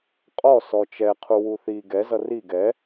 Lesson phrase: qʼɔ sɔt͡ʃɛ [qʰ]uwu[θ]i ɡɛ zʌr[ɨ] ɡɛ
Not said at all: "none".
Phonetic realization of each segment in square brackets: qʰ, θ, i

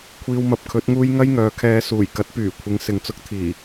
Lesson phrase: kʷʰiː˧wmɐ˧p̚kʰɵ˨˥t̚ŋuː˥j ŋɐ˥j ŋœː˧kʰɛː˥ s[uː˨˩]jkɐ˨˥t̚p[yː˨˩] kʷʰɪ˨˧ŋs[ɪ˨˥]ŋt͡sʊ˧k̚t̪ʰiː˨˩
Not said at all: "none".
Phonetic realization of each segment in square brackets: uː˨˩, yː˨˩, ɪ˨

